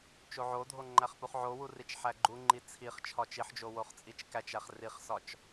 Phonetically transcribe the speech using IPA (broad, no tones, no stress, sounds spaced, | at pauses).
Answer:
t͡ʃ o ʕ o dʱ o ŋ͡ǃ æ χ p u χ ʕ o w u r i t͡ʃ ħ æ ɡ͡ǃ u ŋ͡ǃ i t͡sʰ i χ t͡ʃʰ ɒ t͡ʃ i ħ d͡ʒ o w o χ t͡sʼ i t͡ʃ k æ t͡ʃ æ χ r i χ s ɒ t͡ʃ